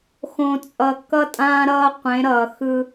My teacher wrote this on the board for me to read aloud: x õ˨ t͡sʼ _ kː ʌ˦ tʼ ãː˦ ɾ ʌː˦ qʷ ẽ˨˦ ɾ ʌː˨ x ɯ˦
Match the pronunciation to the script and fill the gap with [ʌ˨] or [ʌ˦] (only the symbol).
ʌ˨